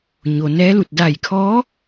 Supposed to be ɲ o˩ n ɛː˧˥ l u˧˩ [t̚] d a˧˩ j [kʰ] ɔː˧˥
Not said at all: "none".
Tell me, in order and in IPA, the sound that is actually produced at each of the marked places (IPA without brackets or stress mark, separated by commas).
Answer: t̚, kʰ